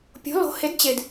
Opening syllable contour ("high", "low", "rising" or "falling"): rising